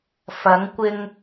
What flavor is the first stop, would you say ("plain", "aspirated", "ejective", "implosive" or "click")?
plain